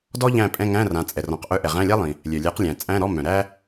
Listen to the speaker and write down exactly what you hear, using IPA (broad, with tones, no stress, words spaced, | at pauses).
dɔ˥ʎæ̃˦˨ pʼɛ̃˧˥˧ŋæ̃˧˥˧rã˩˧ t͡sʼɛ˩rɔ̃˩˧qʔœ˧˥˧ʔɛ˩ ʁæ̃˧˥˧lʲa˥lˠĩ˩ | lʲœ˩lʲæ˨˥qlʲæ̃˩ t͡sʼæ̃˧˥˧ ɾɔ˧˥˧mœ̃˩ɾæ˥